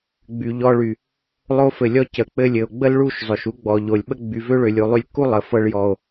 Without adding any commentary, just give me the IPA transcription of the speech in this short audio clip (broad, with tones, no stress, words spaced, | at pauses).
ɡ͡by˨ ʎɔ˧ɭy˨ | lˠo˧fɘ˨lʲɔ˧ cə˨ k͡pɘ˧lʲɘ˨o̯ ɡ͡bə˦lɭu˦˨ʃ zˤø˨ʃu˦ ɡ͡bɔ˨ʎo˨lʲ ɓə˦ ɡ͡by˨vø˦ɭø˨lʲu˨ lˠy˧lʲkːu˦ lˠə˨fɤ˧ɭ jɔ˨o̯